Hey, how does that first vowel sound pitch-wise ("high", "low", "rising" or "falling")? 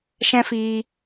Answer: high